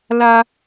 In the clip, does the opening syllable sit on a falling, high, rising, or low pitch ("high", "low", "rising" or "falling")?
high